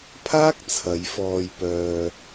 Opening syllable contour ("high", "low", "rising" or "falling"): high